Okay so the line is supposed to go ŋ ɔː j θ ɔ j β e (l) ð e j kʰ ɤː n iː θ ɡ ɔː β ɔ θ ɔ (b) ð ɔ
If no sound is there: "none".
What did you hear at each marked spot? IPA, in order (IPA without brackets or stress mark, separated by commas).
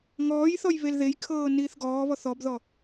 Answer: l, b